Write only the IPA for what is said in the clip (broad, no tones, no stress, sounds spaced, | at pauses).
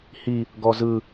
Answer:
h i | ɡ ɔ z ɯ